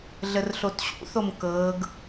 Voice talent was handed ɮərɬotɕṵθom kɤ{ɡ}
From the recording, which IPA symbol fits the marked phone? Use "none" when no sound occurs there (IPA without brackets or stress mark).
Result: ɡ